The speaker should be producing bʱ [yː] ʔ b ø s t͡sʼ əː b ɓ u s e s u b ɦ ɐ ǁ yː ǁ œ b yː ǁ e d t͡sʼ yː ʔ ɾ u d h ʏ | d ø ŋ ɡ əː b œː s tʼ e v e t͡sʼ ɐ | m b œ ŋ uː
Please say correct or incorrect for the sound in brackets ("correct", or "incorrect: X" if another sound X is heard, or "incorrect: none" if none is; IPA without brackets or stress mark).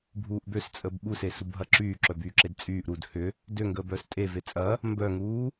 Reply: incorrect: uː